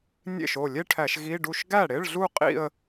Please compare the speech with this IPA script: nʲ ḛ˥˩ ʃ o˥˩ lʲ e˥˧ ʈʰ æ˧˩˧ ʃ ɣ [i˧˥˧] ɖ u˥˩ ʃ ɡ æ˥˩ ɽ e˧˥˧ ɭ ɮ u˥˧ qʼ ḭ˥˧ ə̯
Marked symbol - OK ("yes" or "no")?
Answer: yes